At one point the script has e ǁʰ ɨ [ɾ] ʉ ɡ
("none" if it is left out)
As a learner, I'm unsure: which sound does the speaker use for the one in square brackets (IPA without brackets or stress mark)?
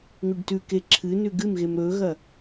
n